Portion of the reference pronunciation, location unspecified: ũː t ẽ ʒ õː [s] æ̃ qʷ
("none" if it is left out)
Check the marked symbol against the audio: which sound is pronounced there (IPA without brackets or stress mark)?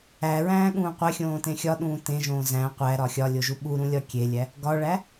z